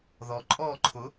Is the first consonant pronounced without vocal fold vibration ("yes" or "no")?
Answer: no